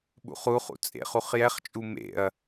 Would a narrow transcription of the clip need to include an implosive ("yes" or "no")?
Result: yes